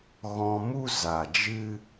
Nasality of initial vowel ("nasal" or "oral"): nasal